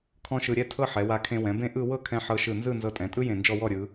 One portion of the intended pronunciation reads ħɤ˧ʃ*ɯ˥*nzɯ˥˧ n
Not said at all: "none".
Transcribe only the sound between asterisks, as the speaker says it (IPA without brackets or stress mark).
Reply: ɯ˧˩